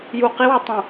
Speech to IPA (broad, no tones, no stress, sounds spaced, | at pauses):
j u q i w ø tˤ ũ